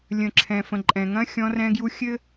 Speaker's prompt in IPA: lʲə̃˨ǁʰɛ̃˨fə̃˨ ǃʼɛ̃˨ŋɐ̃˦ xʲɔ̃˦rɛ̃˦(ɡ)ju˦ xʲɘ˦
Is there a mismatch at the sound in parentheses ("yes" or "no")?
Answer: no